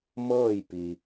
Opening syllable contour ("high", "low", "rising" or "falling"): falling